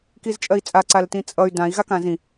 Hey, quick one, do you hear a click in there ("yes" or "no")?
yes